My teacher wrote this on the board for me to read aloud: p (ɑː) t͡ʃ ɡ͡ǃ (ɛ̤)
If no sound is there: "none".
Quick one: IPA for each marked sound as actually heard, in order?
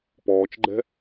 ɔː, ɛ̤

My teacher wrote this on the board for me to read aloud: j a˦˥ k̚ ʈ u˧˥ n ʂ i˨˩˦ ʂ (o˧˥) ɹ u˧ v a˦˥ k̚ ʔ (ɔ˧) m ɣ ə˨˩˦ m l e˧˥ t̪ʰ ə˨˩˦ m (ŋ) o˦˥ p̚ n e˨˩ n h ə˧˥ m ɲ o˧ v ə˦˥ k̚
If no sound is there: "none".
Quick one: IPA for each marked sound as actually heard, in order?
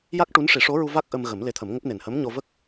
o˧˥, ə˧, ŋ

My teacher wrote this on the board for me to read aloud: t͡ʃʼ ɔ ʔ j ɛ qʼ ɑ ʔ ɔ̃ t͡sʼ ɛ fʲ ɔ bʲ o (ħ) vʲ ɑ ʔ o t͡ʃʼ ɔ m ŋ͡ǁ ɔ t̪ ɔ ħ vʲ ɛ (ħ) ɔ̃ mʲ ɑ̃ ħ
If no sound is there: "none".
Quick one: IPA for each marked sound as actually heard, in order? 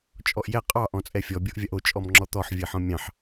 ʔ, ħ

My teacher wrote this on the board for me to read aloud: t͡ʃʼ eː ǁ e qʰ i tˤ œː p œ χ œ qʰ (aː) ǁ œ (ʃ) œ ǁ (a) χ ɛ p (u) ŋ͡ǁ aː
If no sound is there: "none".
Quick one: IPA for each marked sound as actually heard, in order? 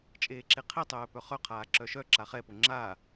aː, ʃ, a, o

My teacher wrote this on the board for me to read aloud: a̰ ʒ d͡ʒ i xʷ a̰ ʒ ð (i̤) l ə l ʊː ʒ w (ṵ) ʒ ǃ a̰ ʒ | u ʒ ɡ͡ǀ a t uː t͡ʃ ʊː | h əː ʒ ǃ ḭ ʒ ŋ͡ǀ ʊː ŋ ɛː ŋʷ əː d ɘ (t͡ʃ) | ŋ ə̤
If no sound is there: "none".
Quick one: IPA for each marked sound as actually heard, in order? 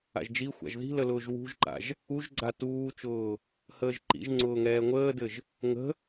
i̤, ṳ, ʒ

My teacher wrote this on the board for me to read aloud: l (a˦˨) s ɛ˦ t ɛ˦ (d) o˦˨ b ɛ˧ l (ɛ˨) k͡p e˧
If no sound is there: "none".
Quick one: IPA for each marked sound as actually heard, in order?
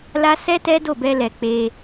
a˦, d, ɛ˨

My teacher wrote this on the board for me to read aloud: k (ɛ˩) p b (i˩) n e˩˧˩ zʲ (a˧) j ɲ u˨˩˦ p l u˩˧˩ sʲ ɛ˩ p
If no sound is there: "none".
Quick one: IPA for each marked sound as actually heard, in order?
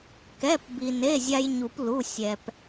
ɛ˩˧˩, i˩, a˧

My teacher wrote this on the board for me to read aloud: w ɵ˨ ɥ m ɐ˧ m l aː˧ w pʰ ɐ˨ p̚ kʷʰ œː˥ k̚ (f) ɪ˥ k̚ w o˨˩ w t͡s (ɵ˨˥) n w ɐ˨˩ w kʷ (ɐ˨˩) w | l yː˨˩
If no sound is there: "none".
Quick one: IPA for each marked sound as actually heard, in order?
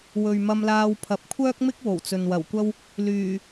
m, ɵ˨, ɐ˥

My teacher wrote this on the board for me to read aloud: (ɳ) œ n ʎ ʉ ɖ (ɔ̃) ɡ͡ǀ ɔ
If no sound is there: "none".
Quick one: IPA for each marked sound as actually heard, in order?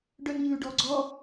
ɖ, ɔ

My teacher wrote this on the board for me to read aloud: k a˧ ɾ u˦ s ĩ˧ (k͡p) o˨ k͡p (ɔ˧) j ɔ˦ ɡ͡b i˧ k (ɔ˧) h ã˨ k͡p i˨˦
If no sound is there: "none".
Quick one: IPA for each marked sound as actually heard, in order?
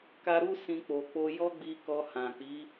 k͡p, o˧, ɔ˧

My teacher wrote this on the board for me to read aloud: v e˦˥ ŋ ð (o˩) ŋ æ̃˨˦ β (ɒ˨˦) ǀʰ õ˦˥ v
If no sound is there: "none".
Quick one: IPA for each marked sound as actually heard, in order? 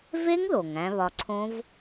o˩, ɒ˨˦

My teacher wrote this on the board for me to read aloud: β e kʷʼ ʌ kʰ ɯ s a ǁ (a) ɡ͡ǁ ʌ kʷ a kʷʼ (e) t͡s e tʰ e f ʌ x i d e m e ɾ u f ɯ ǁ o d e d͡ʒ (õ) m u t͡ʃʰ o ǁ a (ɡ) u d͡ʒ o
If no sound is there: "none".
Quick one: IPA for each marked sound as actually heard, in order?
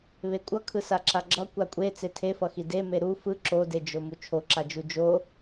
a, e, o, d͡ʒ

